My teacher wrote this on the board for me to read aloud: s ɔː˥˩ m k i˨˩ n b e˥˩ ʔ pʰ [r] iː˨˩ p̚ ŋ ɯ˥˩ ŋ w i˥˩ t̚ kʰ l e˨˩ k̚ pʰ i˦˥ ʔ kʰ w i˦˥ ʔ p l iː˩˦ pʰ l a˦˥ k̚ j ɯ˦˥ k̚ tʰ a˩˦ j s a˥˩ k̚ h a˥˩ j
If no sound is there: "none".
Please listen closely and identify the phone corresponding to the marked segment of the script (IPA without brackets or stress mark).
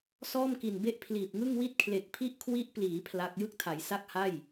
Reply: l